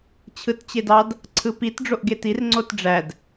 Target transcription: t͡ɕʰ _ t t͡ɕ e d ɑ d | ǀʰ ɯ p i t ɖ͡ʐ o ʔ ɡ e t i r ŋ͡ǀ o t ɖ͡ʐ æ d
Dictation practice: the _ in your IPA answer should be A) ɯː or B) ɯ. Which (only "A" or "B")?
B